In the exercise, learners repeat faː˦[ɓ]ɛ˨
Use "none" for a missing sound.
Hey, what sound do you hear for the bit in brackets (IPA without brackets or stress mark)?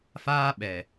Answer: ɓ